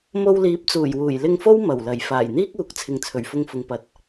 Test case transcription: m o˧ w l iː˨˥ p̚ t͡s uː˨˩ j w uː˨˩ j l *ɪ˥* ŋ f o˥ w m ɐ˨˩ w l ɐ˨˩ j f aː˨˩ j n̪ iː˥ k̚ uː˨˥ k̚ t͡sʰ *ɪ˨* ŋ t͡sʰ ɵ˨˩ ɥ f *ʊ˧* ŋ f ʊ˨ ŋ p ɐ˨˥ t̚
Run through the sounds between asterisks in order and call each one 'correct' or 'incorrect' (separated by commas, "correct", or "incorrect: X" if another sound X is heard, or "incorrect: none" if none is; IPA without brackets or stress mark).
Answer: incorrect: ɪ˧, correct, correct